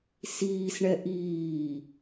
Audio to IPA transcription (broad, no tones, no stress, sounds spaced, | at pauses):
s iː s ɳ ɛ ʔ iː